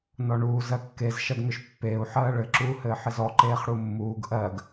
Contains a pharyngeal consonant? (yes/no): yes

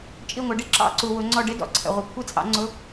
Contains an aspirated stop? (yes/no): yes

